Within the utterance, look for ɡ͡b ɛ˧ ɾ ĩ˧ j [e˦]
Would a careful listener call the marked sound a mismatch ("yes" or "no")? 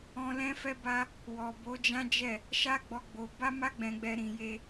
no